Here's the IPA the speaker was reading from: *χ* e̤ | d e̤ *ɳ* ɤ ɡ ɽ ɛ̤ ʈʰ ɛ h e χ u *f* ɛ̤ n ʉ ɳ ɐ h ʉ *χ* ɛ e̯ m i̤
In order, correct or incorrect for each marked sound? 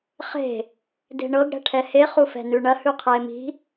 correct, correct, correct, incorrect

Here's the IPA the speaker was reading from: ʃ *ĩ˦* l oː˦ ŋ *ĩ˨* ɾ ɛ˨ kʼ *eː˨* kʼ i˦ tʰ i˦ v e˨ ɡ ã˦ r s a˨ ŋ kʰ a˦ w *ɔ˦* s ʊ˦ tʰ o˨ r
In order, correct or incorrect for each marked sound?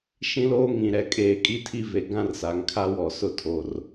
correct, correct, correct, incorrect

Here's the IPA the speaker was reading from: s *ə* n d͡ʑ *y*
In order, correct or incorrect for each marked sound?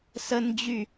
correct, correct

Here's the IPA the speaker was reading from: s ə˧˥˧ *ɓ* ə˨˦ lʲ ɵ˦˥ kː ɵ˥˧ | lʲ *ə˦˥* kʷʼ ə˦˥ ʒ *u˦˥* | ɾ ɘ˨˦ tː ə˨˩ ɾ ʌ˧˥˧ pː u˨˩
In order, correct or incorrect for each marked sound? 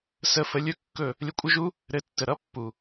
incorrect, incorrect, correct

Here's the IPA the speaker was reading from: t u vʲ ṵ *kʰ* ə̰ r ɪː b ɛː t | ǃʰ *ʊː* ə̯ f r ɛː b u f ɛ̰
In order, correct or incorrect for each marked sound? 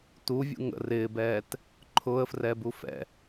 incorrect, correct

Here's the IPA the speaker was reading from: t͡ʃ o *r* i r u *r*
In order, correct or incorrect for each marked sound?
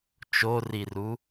correct, incorrect

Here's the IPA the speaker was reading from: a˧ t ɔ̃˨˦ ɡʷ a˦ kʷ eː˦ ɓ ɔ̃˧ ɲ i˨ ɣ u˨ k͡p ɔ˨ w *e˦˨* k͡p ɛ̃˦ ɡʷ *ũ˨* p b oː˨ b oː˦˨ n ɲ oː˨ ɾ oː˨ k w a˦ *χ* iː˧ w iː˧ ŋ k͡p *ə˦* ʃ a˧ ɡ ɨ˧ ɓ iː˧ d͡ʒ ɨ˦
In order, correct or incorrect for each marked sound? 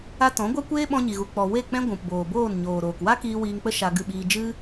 correct, correct, incorrect, correct

